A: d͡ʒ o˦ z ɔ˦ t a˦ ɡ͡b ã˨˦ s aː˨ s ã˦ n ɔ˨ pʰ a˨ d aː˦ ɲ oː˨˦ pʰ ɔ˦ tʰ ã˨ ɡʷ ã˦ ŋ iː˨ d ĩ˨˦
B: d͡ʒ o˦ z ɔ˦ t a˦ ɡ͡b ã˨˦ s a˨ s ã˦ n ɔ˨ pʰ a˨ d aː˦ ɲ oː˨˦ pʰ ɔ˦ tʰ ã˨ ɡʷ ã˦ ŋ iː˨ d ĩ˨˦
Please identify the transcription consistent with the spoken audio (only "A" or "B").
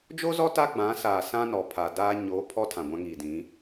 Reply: A